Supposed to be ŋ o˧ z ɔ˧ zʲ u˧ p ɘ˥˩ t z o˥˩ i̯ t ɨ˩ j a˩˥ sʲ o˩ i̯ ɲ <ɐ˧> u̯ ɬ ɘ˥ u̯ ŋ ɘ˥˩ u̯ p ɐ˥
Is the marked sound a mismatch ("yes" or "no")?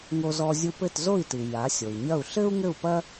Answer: yes